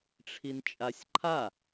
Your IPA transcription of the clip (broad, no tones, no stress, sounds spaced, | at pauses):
ʈ͡ʂʰ i n t͡ʃʼ a sʲ ǃʰ a